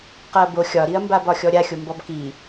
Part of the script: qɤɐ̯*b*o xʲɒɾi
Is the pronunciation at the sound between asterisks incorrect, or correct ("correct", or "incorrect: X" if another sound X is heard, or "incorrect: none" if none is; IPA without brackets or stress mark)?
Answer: correct